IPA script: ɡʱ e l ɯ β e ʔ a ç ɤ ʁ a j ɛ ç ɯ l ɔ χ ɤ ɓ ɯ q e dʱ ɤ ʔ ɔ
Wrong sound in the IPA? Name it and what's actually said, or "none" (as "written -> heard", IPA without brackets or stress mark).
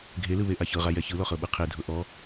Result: q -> qʰ